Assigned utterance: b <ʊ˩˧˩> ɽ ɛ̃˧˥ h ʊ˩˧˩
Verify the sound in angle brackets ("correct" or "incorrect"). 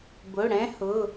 correct